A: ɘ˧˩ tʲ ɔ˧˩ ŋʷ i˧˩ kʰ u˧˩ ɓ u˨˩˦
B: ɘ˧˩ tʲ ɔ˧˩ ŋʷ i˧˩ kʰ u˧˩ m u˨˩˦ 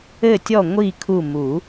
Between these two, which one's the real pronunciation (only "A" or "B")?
B